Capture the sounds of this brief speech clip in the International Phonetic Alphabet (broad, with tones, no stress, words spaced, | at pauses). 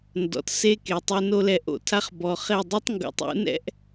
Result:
ndɔ̰˨tse˦ke˨ tˤe˦no˦ lɛ˨ʔo̰˨tʰa˦χ bɔ˨χe˦˨ dˤu˦tˤŋɡṵ˨tˤṵ˦nɛ̰˦ʔ